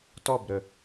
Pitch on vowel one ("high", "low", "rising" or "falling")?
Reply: falling